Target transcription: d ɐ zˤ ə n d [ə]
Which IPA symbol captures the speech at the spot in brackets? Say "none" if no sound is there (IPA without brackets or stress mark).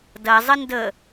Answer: ə